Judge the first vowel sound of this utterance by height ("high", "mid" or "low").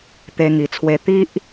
mid